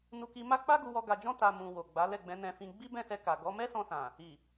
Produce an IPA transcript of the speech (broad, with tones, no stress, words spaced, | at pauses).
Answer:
nu˧ki˧ma˦ k͡pa˦ɡu˧wɔ˧ ɡa˨d͡ʒɔ̃˧ ta˨ mũ˨ wo˨ɡ͡ba˨˦ lɛ˦˨ɡ͡bɛ̃˨˦nɛ̃˧ fĩ˧ ɡ͡bi˦ bɛ̃˦˨sɛ˧ka˨ ɡɔ˨˦ mɛ˦sɔ̃˧sã˨ | i˨